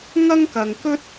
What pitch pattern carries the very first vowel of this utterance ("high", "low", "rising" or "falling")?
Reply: high